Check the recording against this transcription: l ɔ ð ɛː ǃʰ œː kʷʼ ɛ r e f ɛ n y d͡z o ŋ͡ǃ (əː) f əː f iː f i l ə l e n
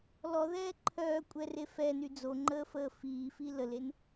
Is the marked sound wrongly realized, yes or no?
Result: no